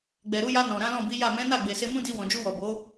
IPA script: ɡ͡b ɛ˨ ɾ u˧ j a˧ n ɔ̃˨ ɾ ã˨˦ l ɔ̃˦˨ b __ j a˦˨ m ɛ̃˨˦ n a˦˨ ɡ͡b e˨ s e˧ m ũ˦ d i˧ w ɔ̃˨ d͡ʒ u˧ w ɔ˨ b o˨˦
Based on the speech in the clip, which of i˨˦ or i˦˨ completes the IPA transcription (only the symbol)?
i˨˦